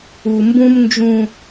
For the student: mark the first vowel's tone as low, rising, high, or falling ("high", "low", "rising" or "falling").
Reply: low